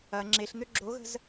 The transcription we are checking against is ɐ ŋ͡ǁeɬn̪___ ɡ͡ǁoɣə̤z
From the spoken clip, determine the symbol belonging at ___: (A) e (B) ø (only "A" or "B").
B